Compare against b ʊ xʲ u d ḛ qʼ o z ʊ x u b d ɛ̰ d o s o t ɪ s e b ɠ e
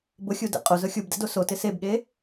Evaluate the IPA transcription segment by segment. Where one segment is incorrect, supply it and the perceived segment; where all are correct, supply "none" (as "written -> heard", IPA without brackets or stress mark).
x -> xʲ